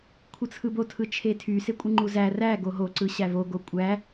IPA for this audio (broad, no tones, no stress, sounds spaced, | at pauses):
kʷʰ ɯ t͡sʰ ɯ b o tʰ ɯ t͡ʃʰ e tʰ y s e kʷʼ ɯ ŋ͡ǃ u z æ r æ ɡ o ɦ o ǀ ɯ ɕ æ v o ɡ o kʷʼ æ